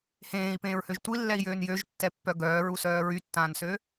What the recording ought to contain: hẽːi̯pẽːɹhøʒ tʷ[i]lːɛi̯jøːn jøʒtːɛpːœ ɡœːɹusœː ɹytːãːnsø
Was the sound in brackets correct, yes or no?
yes